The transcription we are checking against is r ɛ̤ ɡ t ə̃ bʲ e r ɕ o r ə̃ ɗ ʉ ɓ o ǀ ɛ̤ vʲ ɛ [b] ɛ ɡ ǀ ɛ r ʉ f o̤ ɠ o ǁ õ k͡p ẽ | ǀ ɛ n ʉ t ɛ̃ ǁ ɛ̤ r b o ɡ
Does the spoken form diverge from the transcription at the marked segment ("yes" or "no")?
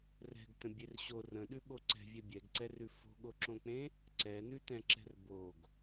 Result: yes